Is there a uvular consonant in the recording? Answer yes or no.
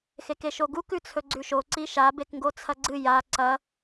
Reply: no